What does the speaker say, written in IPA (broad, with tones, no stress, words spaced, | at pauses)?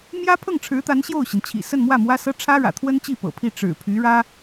mjä˥pʰɤ˥˩ŋʈ͡ʂʰɻ̩˧˥t̪a˧˥n ɕjo˥˩ʊ̯ɕi˩nt͡ɕʰḭ˨˩ sə˥˧n mwä˥˩mwä˥sɤ˥ ʈ͡ʂʰä˥ɻä̰˨˩t̪ʰwə˥n t͡ɕi˥˩pɤ̰˨˩ pʰi˥˩ ʈ͡ʂɻ̩˨˩pʰy˧˥ɻä˥